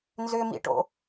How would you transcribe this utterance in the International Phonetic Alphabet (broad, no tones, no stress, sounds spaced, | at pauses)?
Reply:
n z ʏ m ḭ ʈ o̰